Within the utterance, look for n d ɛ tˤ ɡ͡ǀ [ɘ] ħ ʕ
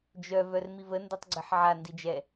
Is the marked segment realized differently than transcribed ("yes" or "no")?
no